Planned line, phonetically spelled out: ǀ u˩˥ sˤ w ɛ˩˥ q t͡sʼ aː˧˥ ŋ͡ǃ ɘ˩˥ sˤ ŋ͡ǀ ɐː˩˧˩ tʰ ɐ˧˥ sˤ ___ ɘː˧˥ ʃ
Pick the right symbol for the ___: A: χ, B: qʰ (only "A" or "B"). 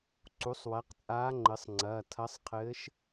B